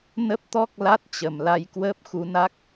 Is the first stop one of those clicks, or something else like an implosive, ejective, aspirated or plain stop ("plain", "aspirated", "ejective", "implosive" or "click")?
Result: plain